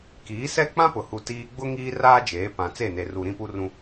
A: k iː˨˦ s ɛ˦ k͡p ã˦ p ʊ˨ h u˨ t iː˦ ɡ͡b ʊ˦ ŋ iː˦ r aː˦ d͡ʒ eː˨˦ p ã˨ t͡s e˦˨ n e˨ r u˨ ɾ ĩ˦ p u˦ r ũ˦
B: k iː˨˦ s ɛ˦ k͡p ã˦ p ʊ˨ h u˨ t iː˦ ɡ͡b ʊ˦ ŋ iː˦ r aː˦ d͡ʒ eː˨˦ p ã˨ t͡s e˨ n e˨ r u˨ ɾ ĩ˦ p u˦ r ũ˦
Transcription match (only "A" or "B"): A